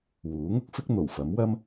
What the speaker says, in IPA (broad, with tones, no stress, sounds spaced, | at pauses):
w uː˨˥ ŋ ʊ˥ k̚ f ɪ˥ k̚ n̪ o˨˩ w f ɐ˨˥ m w ɐ˥ m